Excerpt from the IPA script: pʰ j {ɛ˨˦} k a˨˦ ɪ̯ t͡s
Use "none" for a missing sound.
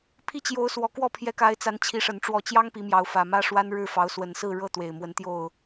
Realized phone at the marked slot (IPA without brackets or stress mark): ɛ˨˦